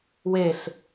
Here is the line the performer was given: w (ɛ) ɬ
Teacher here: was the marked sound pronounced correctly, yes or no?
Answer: no